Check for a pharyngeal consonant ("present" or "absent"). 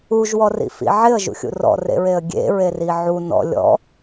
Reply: present